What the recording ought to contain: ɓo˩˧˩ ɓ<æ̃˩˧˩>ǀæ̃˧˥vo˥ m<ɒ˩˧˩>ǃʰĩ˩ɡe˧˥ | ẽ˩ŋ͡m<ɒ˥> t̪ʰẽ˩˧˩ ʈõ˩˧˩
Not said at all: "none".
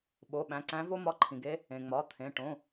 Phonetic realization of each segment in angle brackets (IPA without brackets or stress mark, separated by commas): æ̃˩˧˩, ɒ˧˥, ɒ˩˧˩